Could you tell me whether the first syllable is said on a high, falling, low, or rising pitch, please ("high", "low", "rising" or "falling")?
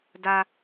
high